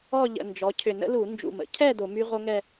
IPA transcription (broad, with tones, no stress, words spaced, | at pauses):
ɔ˥˧ʎə̰˨˩ nd͡ʒɔ˩˧cʰʏ˨˩nə̰˦˥lu˧˩˧ nd͡ʒṵ˨˩mə̰˩˧cʰɛ˥˧ do˧˩˧my˦˥ʁo˦˥ŋɛ˥˧